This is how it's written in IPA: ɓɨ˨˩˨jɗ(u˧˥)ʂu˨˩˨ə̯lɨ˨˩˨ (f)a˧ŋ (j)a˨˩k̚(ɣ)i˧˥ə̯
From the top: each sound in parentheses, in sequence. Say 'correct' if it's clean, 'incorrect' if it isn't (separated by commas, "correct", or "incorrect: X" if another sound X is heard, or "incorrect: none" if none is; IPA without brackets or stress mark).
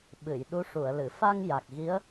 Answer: correct, correct, correct, correct